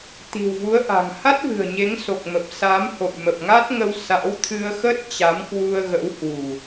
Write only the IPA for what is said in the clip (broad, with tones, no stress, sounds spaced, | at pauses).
t̪ i̤˨˩ w v u˨˦ ə̯ ʔ a̤˨˩ ŋ h a˦˥ t̚ v ɨ̤˨˩ ə̯ ɲ e˨˦ ŋ s o˨˩ k̚ m ə˨˩ p̚ s a˨˦ m h o̰˧˨ j m ə˨˩ p̚ ŋ a˦˥ t̚ ŋ ə˧ w s a̰˧˥ w t̪ʰ ɨ˧ ə̯ x ə˦˥ t̚ t͡ɕ a˨˦ m k w u˧ ə̯ ɣ ə̰˧˥ w h w ṳ˨˩